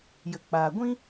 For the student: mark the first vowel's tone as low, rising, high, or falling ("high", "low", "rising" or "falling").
low